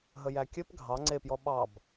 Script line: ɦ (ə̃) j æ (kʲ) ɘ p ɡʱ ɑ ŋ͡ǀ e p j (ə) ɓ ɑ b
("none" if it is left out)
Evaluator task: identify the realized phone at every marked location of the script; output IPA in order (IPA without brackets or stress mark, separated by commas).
ə, kʲ, ɔ